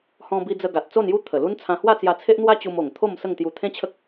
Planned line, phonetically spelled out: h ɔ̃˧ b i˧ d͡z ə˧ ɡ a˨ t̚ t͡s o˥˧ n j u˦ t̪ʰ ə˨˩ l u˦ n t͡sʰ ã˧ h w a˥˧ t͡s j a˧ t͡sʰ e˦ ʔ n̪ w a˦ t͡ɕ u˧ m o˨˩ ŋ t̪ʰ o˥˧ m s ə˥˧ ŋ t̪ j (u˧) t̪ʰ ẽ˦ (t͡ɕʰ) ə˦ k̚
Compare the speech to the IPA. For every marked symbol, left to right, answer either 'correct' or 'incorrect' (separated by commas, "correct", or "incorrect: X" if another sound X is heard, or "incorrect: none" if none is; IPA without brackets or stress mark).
correct, correct